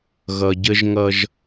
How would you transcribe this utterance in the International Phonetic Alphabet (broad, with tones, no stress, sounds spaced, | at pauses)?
ɣ ʌ˨ ɟ ə˦ ʒ ŋ ʌ˦ ʒ